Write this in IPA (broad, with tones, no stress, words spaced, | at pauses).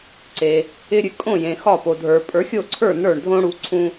ǀe˩ | ɪ˧ɾʲɨ˩ kʼõ˥˩ jẽ˩xɒ˥˩po˩ dʱə˞˩ pʼə˞˩˥xʲo˥˩ǀʰə˞˥˩ nə˞˥˩ɳdʱõ˥ɽu˧ ǀʰũ˥